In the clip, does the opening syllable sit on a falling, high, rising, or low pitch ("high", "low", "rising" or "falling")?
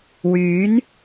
rising